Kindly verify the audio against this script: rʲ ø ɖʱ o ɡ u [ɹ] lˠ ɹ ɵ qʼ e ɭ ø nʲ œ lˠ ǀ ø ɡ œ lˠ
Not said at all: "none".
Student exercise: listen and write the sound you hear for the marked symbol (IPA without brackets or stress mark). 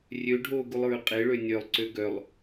none